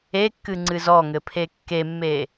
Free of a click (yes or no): no